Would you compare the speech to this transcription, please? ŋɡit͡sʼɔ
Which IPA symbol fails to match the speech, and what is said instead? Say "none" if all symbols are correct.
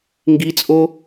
ɔ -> o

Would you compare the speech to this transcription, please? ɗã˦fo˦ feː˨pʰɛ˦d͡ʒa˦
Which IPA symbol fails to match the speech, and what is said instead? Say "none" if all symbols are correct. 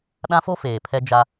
none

